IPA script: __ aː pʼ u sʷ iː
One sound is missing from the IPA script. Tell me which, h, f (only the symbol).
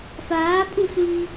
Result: f